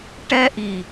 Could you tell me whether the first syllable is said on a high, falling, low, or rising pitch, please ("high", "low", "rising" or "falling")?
high